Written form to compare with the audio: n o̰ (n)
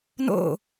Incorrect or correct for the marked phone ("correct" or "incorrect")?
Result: incorrect